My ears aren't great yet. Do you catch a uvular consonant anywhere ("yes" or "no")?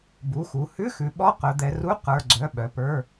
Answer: yes